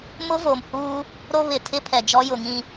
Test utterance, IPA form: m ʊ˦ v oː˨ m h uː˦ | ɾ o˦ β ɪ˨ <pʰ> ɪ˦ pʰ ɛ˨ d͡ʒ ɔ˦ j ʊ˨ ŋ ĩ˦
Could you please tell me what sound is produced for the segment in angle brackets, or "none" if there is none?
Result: tʰ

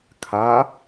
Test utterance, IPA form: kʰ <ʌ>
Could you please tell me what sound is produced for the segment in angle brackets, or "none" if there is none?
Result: a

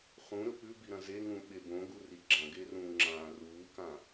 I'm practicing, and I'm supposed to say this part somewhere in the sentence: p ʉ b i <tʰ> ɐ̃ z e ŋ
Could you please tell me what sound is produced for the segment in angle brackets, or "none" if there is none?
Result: ɾ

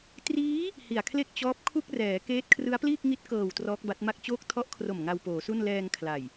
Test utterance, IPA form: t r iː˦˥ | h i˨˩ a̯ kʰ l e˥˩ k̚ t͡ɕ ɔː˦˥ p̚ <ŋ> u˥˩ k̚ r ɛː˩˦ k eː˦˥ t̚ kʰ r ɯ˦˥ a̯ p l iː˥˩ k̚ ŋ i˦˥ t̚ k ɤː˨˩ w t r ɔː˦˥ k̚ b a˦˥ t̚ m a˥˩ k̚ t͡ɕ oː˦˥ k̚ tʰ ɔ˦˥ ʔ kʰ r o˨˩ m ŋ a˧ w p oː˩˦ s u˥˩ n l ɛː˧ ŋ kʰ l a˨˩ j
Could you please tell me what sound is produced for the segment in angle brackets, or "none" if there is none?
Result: kʰ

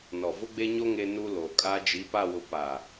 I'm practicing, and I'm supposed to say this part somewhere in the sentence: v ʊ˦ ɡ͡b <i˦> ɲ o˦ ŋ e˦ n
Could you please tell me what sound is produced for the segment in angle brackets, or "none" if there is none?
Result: e˦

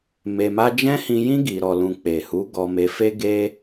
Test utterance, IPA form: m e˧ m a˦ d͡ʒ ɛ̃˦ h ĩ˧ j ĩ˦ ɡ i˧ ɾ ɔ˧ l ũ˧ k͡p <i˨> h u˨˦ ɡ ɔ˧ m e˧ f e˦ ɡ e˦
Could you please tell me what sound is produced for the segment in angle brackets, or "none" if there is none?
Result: e˨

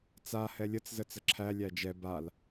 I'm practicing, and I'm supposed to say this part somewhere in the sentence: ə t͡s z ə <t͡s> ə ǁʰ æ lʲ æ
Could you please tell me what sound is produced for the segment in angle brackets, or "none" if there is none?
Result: t͡s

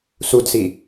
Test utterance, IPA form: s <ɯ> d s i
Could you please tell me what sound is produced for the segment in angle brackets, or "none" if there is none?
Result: u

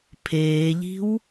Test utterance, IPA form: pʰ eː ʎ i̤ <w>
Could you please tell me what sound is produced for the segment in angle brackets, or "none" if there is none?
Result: w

